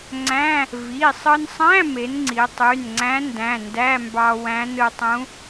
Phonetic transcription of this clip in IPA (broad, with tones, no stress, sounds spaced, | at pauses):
ŋ͡ǀ æ̃˧˥˧ | v i˩˧˩ sˤ ɯ˧ n sˤ æ̃˧˥˧ m e˩˧ n ŋ͡ǀ i˩˧ tˤ y˩˧˩ n ŋ͡ǀ æ̃˧˥ n d æ̃˩˧˩ n d æ˧˥˧ m b ɑ˧ w æ̃˧˥ n ɯ˧ tˤ ũ˧˥